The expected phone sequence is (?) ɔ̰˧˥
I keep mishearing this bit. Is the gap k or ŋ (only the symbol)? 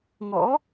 ŋ